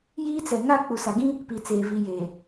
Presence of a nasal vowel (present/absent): present